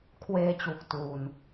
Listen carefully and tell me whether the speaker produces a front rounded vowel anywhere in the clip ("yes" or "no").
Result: no